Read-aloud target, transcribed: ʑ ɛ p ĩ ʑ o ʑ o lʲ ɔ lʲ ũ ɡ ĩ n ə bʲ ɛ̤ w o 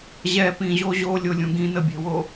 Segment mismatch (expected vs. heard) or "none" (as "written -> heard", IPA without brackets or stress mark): ɔ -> o